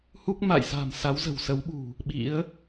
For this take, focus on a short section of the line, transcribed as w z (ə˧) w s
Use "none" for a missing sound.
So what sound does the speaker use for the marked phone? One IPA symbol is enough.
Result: ə̤˨˩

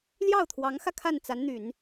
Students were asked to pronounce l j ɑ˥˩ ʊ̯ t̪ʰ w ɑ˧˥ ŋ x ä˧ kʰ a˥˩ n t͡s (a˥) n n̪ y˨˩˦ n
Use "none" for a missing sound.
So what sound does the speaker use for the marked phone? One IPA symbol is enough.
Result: a˧˥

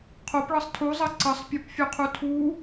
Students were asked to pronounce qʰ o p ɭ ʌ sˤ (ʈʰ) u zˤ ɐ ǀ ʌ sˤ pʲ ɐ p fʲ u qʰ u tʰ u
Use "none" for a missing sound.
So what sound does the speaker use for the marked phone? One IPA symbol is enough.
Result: tʰ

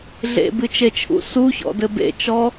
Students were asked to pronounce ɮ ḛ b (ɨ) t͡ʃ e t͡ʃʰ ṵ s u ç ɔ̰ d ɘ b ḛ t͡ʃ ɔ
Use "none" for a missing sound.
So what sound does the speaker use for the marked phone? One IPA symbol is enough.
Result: ɨ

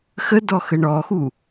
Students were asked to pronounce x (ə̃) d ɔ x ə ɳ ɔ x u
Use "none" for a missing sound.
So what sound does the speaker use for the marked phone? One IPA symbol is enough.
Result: ə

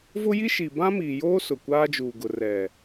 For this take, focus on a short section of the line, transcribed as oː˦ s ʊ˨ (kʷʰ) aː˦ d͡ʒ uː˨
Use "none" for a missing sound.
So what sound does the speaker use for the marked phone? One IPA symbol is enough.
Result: kʷ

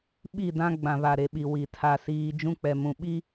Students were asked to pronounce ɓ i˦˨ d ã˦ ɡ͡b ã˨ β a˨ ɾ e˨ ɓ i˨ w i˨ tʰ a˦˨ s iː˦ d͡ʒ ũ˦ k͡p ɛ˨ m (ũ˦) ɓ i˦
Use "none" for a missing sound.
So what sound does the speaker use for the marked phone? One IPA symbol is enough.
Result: ũ˨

